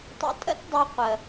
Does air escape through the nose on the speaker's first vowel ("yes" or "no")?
no